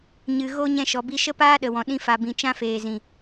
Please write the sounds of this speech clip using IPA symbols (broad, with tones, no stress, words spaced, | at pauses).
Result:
ɲɨ˨ɣo˧ ɲɛ̃˧ʃɔ˨bi˧ ʃə˦paː˦ɗə˨wɔ̃˨ ɗĩ˧fa˨bĩ˨ t͡ʃã˧feː˨ zĩ˨